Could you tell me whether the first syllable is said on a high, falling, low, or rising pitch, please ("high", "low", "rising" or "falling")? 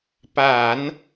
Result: low